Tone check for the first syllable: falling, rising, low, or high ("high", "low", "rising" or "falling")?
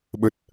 low